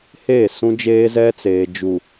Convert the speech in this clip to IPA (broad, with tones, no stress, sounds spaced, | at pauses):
h eː˦˨ s ũ˦ d͡ʒ eː˦ z ɛ˦ t͡s eː˨ d͡ʒ u˨